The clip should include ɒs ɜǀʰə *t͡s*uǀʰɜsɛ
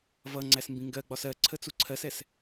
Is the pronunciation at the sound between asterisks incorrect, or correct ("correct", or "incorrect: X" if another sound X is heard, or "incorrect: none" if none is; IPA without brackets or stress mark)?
correct